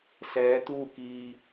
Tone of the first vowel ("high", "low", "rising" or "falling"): rising